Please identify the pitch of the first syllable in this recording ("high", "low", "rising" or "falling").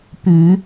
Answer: rising